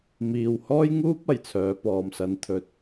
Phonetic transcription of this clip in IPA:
m iː˨ w h ɔː˥ j ŋ uː˥ p̚ ɐ˨˩ j t͡sʰ œː˨˧ p ɔː˨ m s ɐ˨˧ n t̪ʰ ɵ˨ t̚

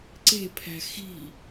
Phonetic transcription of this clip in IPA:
ǀ e̤ pʰ æ̤ x i̤

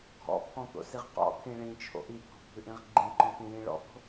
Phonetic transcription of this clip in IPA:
ɡʱ ɔ̰ pʰ ɔ̃ t̪ o̰ s i ʁ q ɔ̰ t̪ʰ ĩ ɭ ĩ t͡ʃʰ o̰ ʔ i t̪ʰ o̤ bʱ ʉ ʔ ĩ ʁ ɡ͡ǃ ĩ ǃ ɔ̃ t̪ ĩ j ĩ ɭ ɔ̰ t̪ o̤

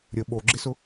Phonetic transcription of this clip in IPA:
ɾʲ ə ɓ o ɡ͡ǁ ɪ s ʊ

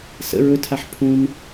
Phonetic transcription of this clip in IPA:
s ə̰ ɹ ɵ tʰ a ħ pʰ ũ n

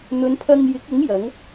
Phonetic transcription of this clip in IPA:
n̪ ɵ˨˧ n pʰ ɐ˧ ŋ j ɪ˨˥ k̚ ʊ˨˥ ŋ j ɐ˨˥ ŋ

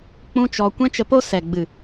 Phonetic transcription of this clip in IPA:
k͡p ũ˧ t͡ʃ ɔ˨ kʷ ɛ̃˦ t͡ʃ ə˧ p o˦ s ɛ˨ ɡ͡b ɨ˨

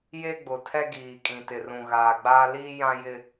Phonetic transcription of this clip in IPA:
j e˦ ɡ͡b ʊ˨ tʰ ɛ˦ ɡ iː˨ kʼ ĩ˨ t ɪ˨ r ũ˨ ɣ aː˨ ɡ͡b aː˦ l iː˦ j ã˦ j ɪ˦

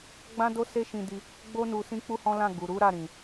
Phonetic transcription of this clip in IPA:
ɡ͡b ã˦ d o˦ s e˦ ʃ ĩ˧ d i˧ | ɡ͡b o˦ n u˧ s ĩ˦ k͡p u˦ h ɔ̃˦ l ã˦˨ ɡ u˨ ɾ u˨˦ ɾ a˦˨ ɾ ĩ˨

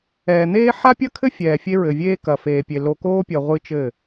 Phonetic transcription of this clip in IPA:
ɛː˨ n̪ eː˦ ħ a˦ pʲ ɐ˦ kʰ ɘ˦ fʲ ɛː˨ fʲ e˦ ɹ ɘ˨ vʲ eː˦ k ɐ˨ f eː˨ pʲ e˨ l o˨ k oː˦ pʲ ɐ˨ ʁʷ ɨ˦ t͡ʃ ɘ˦˨

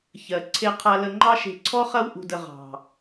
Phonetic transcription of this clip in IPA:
ç ɜ˨ ǀʰ e˧ qʰ a˧ l ə˧ ŋ͡ǃ ɑ˦ ʃ e̤˧ ǀʰ ɔ˦ χ ɐ˧ w ʔ ṳ˨ d ə˨ ʁ ɑ̤˨

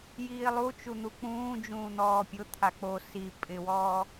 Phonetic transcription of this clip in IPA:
j iː lˠ u t͡ʃ u n̪ u k͡p ũː d͡ʒ ũː n̪ ɔː pʲ ʊ t̪ʰ a k͡p o s i pʼ ɪ w ɔː

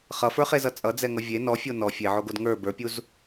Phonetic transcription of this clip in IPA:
χ ʌ f ə˞ χ e z ʌ t͡sʼ ʌ d͡z ɛ ŋ ʌ vʲ e n ɔ fʲ o n ɔ fʲ e ʕ o ɡ o d ŋ ə˞ b ə˞ pʲ u z

